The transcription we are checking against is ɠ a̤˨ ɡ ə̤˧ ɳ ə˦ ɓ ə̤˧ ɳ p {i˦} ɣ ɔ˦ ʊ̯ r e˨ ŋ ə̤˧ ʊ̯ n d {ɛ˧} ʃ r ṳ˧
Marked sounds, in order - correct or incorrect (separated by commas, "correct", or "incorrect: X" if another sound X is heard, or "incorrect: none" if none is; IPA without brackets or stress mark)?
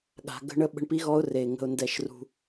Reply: correct, correct